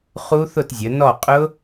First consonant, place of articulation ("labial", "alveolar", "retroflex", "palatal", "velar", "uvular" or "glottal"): uvular